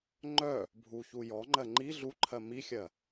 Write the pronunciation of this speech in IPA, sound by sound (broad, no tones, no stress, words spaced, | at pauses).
ŋ͡ǃœ | bʱuçu jɔŋ͡ǃɜ ŋ͡ǃi ɮuǃʰɜ mixʲɜ